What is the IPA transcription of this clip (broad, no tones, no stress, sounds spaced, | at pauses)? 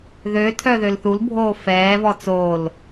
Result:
ð ø tʰ œ ð ø l θ u l bʱ oː f ɛː v ɔ t͡s oː l